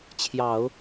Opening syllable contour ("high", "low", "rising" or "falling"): low